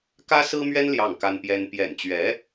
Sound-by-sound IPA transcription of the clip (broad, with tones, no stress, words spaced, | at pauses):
kä˥sɹ̩˥mɥɛ˥n ljɑ˥˩ŋka˥npjɛ˥n pjɛ̰˨˩nt͡ɕɥɛ˧˥